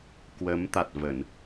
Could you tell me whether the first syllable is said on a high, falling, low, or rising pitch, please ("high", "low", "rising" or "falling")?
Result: rising